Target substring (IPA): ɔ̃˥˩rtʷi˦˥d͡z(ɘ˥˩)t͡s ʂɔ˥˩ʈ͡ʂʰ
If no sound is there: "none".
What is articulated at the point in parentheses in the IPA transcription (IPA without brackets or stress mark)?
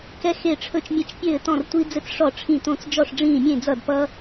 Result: ɘ˥˩